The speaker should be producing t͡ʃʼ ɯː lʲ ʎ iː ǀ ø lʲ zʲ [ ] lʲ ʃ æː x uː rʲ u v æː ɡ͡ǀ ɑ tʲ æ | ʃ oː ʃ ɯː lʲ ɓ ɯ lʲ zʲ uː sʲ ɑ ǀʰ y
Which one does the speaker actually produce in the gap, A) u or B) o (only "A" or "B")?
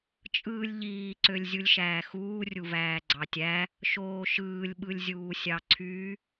A